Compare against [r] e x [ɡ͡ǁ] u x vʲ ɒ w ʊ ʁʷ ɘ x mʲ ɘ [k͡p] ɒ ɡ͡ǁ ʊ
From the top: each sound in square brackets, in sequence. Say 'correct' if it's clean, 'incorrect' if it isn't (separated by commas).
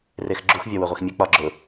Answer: correct, correct, correct